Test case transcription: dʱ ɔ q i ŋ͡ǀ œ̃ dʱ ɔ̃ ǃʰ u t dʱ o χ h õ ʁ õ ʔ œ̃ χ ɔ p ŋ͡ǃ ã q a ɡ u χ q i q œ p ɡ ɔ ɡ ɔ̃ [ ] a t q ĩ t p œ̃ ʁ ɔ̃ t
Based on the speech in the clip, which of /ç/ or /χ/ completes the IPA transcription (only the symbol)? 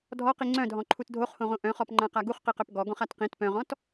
χ